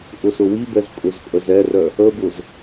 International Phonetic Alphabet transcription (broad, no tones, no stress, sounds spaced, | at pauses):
ʔ ʊ s ʊ w i b ɛ z kʼ ʊ z pʼ ə z ɛ r œ | ə b ʊ z